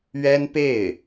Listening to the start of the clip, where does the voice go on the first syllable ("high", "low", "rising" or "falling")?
high